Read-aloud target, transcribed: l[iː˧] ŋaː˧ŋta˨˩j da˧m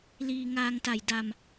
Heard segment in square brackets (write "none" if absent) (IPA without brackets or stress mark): iː˧